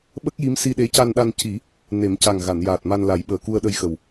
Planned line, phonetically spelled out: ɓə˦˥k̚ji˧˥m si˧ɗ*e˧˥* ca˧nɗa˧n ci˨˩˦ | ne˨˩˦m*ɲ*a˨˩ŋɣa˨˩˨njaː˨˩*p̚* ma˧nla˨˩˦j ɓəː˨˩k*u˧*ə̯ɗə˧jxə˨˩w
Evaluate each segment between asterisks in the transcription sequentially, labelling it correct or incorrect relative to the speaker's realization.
correct, incorrect: c, incorrect: t̚, correct

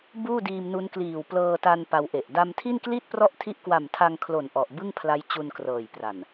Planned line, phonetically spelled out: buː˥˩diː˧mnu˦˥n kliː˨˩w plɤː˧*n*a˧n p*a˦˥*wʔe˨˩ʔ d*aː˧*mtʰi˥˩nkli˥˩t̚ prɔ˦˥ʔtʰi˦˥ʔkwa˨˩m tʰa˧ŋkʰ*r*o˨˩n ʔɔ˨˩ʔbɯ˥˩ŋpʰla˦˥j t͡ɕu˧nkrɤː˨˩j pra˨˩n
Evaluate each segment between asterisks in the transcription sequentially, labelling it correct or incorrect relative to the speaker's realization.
incorrect: t, incorrect: a˧, incorrect: a˧, incorrect: l

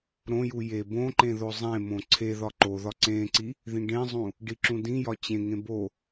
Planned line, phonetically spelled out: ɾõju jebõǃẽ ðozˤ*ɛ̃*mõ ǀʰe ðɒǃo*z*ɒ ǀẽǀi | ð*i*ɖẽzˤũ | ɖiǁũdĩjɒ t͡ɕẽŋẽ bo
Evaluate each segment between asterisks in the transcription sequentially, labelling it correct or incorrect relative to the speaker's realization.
incorrect: ẽ, incorrect: ð, incorrect: ĩ

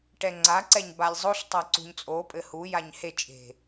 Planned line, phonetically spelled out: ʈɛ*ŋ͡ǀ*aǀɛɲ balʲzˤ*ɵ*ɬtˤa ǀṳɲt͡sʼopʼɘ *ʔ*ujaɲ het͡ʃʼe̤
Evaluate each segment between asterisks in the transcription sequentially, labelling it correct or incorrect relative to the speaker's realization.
correct, incorrect: o, incorrect: h

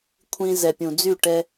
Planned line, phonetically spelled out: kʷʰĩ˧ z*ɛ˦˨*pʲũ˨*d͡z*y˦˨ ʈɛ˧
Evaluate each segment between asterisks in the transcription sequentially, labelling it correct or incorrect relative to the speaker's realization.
incorrect: ɛ˨, correct

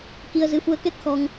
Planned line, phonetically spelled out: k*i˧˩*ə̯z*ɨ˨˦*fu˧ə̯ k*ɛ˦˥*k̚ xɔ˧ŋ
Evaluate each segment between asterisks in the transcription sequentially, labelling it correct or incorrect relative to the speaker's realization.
incorrect: i˧, correct, correct

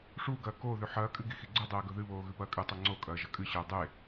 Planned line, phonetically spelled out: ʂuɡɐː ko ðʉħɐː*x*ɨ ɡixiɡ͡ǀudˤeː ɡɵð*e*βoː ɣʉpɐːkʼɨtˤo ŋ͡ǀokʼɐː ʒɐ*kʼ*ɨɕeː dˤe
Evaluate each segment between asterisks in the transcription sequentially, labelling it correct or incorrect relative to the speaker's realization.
incorrect: kʼ, incorrect: ɨ, correct

